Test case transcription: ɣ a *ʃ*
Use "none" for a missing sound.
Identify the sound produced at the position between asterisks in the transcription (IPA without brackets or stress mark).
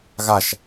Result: ʃ